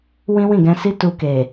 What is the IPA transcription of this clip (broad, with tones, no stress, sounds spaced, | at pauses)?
w ĩ˦ w ĩ˦˨ ɡ ɛ̃˧ s i˦ t u˧ k e˨